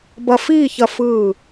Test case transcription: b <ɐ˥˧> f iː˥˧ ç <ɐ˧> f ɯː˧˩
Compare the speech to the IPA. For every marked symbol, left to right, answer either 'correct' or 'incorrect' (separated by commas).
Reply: incorrect, correct